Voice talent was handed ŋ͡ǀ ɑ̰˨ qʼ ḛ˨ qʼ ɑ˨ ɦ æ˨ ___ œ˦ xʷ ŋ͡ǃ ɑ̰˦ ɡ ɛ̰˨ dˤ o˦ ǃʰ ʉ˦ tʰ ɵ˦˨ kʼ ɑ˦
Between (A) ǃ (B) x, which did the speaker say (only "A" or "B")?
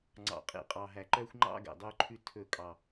A